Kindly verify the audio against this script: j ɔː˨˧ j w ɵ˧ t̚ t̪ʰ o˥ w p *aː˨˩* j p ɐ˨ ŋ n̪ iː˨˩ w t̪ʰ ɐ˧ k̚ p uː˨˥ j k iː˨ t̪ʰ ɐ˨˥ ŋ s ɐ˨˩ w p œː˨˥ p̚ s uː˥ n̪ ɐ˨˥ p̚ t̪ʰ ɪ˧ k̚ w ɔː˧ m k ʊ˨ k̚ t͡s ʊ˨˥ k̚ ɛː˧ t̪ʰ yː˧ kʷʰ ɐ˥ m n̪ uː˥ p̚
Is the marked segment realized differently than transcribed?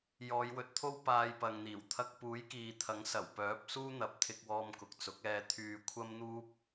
yes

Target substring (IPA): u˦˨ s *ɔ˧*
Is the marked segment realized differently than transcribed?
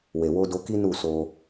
yes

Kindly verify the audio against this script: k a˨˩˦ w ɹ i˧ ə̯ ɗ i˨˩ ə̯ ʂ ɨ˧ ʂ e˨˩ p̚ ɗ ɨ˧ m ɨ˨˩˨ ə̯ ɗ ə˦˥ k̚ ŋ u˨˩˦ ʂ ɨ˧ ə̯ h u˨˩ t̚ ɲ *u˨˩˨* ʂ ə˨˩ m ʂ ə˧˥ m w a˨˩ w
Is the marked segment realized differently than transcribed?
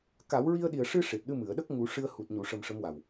no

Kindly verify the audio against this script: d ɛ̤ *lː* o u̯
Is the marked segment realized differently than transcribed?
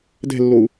no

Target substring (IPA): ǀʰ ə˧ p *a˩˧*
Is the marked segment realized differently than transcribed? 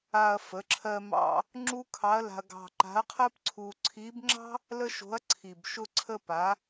no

